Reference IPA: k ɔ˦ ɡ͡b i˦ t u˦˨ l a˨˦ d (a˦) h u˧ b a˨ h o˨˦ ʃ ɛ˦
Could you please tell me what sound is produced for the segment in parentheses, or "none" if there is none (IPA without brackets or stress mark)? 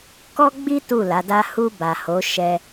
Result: a˦